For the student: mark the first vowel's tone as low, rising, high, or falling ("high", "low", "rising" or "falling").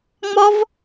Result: high